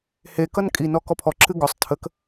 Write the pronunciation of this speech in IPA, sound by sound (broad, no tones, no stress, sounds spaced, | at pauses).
h e k ʌ n kʼ i n ɔ k ɔ pʰ ɔ ǁ ɨ ɡ ɔ sˤ tʰ ə k